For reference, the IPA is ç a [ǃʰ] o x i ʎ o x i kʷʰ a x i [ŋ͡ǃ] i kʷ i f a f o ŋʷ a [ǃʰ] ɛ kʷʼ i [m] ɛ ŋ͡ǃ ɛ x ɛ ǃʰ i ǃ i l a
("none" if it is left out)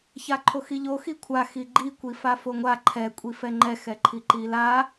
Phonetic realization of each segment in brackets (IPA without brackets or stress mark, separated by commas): ǃʰ, ɡ͡ǃ, ǃʰ, f